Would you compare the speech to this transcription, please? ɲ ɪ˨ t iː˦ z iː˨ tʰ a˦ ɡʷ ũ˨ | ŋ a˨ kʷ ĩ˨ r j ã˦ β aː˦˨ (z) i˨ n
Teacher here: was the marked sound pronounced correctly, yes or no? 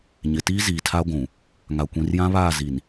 yes